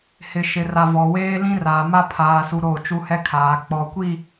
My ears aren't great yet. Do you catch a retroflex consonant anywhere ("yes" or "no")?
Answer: no